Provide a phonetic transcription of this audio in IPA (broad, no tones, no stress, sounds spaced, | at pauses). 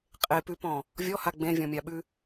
qʼ e p ʉ p ɔ̃ | vʲ ɔ h a ɡ͡b ẽ vʲ ɔ̃ mʲ a ɓ ʉ